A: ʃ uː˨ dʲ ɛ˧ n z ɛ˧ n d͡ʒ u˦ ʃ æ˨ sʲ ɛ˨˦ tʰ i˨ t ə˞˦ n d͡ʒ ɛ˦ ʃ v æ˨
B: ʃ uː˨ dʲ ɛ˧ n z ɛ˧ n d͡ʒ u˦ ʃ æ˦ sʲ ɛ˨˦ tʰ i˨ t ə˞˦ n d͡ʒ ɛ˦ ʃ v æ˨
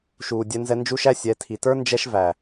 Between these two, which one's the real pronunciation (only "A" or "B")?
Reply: B